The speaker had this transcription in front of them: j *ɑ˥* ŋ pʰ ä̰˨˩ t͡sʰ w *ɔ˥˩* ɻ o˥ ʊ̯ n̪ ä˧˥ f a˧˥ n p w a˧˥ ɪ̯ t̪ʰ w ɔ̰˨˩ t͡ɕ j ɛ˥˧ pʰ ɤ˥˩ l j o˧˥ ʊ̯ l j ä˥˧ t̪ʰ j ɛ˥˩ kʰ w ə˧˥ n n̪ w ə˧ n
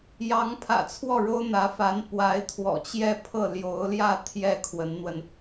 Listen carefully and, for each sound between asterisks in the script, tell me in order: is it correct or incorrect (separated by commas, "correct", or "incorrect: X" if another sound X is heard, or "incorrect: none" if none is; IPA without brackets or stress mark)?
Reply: incorrect: ɑ˧˥, correct